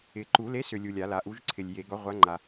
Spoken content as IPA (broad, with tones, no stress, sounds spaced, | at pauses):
ɪ˨ ǃ u˨˩˦ l e˨˥ s ʏ˨ lʲ u˨ lʲ a˨˩˦ l a˨ ʔ u˨˥ ʒ ǀʰ ɪ˨ lʲ j e˨˩˦ ɡ ɒ˨˥ ʁʷ a˨˥ ŋ͡ǃ a˨